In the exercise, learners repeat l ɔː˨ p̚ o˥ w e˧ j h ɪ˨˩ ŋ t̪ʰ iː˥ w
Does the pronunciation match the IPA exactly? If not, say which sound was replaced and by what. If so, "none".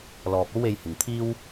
none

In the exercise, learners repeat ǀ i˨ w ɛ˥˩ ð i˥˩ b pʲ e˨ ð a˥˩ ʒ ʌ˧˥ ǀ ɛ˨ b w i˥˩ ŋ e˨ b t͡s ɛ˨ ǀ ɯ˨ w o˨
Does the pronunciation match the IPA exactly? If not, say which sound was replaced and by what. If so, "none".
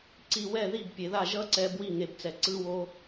none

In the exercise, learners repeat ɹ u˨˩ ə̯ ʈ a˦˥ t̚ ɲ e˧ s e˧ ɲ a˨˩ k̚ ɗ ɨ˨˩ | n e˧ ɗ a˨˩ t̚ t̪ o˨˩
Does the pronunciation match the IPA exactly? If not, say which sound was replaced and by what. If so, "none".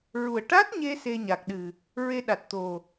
n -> ɹ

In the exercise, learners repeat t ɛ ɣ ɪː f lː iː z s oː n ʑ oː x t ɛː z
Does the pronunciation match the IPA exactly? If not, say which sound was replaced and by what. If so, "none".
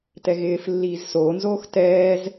ʑ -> z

